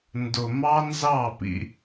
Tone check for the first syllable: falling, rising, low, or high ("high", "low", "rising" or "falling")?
low